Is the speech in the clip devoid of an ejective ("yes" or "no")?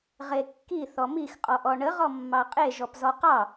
no